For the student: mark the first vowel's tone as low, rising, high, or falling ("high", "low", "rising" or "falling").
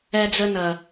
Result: high